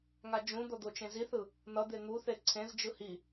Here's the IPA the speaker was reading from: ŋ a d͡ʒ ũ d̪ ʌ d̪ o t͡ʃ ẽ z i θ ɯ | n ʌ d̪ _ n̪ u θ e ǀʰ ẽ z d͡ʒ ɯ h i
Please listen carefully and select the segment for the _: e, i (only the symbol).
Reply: e